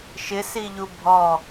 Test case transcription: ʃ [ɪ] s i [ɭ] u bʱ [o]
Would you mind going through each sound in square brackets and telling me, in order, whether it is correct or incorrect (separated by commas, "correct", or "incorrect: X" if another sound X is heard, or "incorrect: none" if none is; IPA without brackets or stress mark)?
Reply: correct, incorrect: ʎ, incorrect: ɔ